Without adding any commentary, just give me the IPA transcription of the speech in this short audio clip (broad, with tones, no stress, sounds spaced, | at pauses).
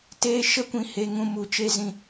t eː˦ ʃ ə˦ kʷ ĩ˧ h e˧ ŋ ũ˧ m u˨ t͡ʃ e˧ z ĩ˧